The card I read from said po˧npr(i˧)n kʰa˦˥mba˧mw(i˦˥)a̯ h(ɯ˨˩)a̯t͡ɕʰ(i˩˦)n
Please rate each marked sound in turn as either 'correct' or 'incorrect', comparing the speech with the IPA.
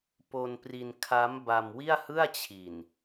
correct, incorrect: i˥˩, incorrect: ɯ˥˩, incorrect: i˨˩

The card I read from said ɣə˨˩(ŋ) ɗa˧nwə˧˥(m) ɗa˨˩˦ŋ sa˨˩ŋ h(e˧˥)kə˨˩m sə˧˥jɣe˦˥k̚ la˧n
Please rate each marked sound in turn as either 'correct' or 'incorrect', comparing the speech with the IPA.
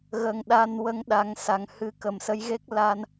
correct, incorrect: ŋ, incorrect: ɨ˧˥

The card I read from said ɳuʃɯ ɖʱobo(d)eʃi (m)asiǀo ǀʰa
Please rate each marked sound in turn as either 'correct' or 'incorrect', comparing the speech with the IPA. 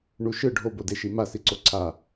correct, correct

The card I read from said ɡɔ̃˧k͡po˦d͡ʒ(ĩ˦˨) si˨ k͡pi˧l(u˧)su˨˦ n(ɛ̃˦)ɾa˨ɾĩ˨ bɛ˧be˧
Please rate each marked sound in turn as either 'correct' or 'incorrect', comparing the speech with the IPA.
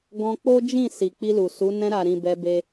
correct, incorrect: u˨, incorrect: ɛ̃˧

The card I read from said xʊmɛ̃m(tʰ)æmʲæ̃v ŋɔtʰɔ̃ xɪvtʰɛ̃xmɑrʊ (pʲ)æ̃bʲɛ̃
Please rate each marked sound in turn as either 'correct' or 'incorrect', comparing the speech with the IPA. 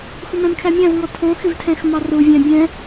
incorrect: kʰ, incorrect: vʲ

